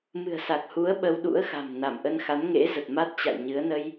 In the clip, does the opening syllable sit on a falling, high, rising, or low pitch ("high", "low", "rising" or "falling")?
low